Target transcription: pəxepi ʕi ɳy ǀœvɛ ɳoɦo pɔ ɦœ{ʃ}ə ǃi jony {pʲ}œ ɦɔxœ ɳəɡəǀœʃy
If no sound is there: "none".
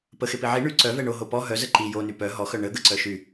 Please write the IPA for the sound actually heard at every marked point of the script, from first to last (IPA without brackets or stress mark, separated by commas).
z, p